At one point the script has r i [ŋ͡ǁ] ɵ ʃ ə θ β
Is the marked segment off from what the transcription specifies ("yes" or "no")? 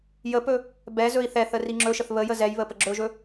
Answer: no